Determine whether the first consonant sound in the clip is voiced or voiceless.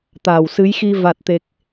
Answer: voiceless